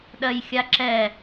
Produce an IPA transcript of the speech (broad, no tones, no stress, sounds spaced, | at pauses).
ɗ ɜ j xʲ a ǁ ɛ